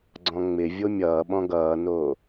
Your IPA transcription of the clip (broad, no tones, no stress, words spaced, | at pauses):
ɡ͡ǀɔ̃ŋ͡mɪvʲo mʲʌːɓɔ̃ ɡʌːnoː